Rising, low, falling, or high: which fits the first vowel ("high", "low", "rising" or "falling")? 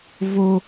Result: high